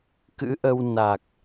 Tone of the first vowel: rising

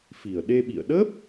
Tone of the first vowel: low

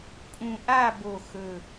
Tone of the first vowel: low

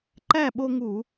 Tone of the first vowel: falling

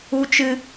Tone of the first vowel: high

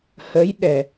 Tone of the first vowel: rising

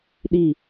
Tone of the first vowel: falling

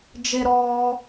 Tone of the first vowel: high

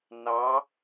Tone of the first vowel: rising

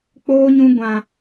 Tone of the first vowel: high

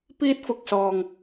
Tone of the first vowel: high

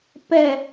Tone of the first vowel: falling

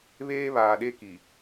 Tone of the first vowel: high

